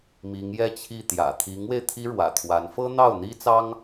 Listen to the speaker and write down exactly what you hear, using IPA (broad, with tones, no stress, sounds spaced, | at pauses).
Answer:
m i˧˥ ŋ j ɛ˥˧ t͡ɕʰ i˥˩ t̪ j ä̰˨˩ t̪ʰ i˧˥ ŋ w e˧ ɪ̯ t̪ʰ i˥ ɻ w ä̰˨˩ t̪ʰ w a˧˥ n f ɤ˥ n̪ ɑ˥˩ ʊ̯ n̪ i˥ t͡s ɑ˥ ŋ